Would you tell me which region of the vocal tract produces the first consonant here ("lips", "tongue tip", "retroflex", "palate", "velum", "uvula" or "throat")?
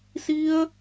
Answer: tongue tip